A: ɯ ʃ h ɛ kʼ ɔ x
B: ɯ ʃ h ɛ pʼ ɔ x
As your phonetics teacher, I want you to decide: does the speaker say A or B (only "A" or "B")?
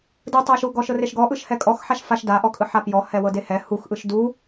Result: A